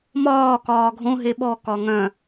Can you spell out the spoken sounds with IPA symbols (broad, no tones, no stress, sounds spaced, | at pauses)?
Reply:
m ɒː k ɒː ɡʱ õ ɦ e ɓ ɔ k ɒ ŋ œ̃